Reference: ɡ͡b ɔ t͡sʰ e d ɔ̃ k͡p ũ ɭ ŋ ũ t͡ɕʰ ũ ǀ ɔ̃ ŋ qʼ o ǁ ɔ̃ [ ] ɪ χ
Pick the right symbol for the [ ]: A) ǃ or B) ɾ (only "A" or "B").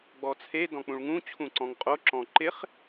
A